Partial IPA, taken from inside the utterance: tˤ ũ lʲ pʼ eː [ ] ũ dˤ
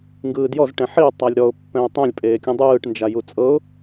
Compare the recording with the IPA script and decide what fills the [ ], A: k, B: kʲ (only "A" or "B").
B